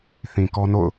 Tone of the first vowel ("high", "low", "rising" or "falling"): low